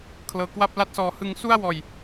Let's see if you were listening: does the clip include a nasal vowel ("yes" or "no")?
no